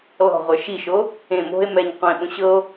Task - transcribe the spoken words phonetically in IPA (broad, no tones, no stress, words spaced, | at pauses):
lɔ̤ʁʷə˞ ʃiʃo | ẽ mo̤e̯ mɛɲ qʷẽɓõ ɕɤo̯